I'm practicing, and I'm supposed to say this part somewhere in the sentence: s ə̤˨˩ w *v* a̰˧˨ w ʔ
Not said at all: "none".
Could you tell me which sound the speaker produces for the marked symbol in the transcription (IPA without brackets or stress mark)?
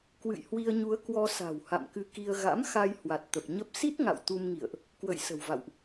v